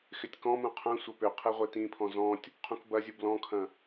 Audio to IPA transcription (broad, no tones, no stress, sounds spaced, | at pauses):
x ɪ tʲ k ɔ̃ m ũ qʰ ɐ̃ sʷ ɐ p ʏ qʰ e ʁʷ e t ĩ pʰ ɔ̃ z ɔ̃ tʲ | qʰ ũ k b ɐ zʲ u b l ɔ̃ kʰ ɐ̃